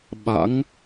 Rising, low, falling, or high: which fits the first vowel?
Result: rising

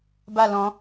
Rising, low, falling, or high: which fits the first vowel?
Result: falling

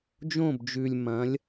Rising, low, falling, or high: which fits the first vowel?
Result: falling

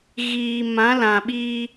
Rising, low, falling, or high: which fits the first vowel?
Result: low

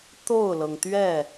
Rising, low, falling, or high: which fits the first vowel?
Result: falling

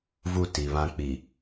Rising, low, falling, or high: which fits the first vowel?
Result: falling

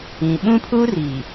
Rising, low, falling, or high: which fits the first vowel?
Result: low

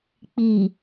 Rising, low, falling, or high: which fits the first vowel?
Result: low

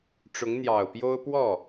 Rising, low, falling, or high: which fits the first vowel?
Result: rising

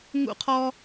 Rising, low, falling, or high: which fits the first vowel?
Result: high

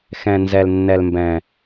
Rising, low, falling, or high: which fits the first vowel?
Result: low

